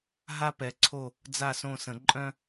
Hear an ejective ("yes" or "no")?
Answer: yes